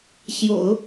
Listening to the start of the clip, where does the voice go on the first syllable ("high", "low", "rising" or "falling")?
low